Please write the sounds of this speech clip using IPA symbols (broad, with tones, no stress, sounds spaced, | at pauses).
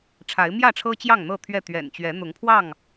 ʈ͡ʂʰ a˨˦ ɪ̯ m j ä˥˨ ʈ͡ʂʰ ɤ˦ t͡ɕ j ɑ˥˨ ŋ n̪ ɤ˥˨ t̪ʰ ɥ ɛ˥˨ t̪ ɥ ɛ̰˨˩ n t͡ɕ ɥ ɛ˨˦ n̪ ʊ˨˦ ŋ pʰ w ɑ˥˨ ŋ